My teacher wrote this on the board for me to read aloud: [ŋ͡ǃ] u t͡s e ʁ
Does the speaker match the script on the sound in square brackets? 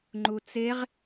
yes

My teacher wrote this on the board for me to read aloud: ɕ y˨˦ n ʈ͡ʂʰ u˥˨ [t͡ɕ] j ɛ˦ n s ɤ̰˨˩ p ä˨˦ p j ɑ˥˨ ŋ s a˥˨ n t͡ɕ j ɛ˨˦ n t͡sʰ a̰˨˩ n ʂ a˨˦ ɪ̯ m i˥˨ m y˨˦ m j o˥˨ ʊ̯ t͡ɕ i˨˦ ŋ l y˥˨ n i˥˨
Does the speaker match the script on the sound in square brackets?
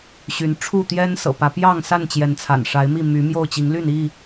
no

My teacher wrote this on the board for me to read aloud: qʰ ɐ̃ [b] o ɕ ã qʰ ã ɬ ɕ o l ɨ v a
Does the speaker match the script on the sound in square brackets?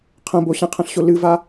yes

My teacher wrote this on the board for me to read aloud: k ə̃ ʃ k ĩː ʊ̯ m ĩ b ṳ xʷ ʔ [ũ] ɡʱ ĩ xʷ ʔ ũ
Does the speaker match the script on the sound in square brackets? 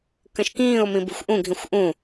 yes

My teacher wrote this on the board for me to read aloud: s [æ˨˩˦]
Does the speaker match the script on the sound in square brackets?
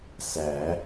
yes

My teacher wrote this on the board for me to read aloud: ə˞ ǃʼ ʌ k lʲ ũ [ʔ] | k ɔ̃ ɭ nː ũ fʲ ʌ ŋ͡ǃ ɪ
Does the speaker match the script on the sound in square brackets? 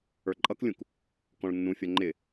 no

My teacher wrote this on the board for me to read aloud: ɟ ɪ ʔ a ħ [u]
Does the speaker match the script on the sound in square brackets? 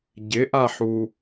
yes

